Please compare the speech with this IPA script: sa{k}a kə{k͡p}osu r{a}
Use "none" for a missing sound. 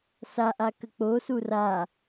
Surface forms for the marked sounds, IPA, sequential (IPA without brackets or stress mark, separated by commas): ʔ, k͡p, a